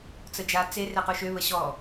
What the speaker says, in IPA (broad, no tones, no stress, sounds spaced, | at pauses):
t͡s ə d͡ʒ a t͡s e r e q u ʃ ø β ə ɕ ɔ